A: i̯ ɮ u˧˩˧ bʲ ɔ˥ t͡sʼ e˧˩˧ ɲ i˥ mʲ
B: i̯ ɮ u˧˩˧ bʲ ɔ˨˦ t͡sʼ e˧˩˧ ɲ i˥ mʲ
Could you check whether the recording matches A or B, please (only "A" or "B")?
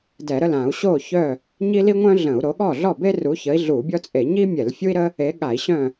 A